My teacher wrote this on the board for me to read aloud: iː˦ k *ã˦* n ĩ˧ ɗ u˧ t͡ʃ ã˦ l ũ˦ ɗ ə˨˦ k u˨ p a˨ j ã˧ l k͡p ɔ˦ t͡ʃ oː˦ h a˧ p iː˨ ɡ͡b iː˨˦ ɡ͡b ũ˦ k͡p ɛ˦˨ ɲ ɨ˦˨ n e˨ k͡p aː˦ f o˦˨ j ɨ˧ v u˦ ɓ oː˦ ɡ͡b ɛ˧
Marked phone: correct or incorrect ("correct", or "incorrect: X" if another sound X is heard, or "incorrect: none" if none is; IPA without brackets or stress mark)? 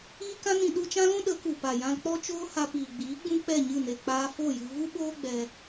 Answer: correct